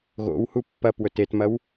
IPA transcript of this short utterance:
ɣ o̰ w h u pː ɐ p w ɵ t e t m ɐ w

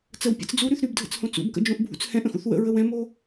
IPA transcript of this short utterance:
t͡s ə w pʲ ə̰ t͡s d͡z u ɾ y θ ɾ y b dʱ ə̰ t͡s h õ t͡s ṵ b k ə̰ d͡ʒ õ ʔ bʱ ṵ t͡s h ɛ̃ ʔ ə̃ x ṵ θ w ə̰ ɹ ə w ɛ̃ m o

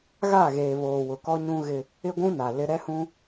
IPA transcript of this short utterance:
ɣ a˦˨ ɣ eː˨ β oː˨ w ʊ˨ k ɔ˦ ɲ ũ˦ ɣ ɪ˦ | ɪ˦ ɡʷ ũ˦ n a˨ l ɪ˦ ɾ ɛ˦ h ũ˦

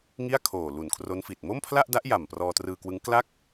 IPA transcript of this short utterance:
ŋ i˥˩ a̯ kʰ oː˨˩ l u˨˩ n kʰ r o˦˥ n f i˨˩ t̚ m o˥˩ m pʰ l a˥˩ ʔ d a˦˥ ʔ j a˨˩ m p r ɔː˧ t r ɯː˧ k w ɯ˦˥ ŋ k l a˦˥ k̚

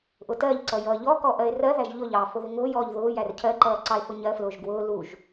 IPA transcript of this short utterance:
ʔ ʊ t ɜ ʎ ǀ ʌ j ʌː ʎ ɔ k ɔ ʔ ɜ e̯ r ɜ ð æ ʒ ʎ ʊ ʎ ɑː f ʊ ð ɪ ŋ ʊː j ɔː ʎ ð ʊː j æ r cʰ ɜ ǃ ʌː ǀ ɑ e̯ f ʊ ɲ ɜ f l ʊː ʒ ɡ w ʊː l u ʒ

